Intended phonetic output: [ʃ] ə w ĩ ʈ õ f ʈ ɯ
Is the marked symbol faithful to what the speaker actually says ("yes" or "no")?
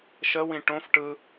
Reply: yes